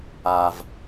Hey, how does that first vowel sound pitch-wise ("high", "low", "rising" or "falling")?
low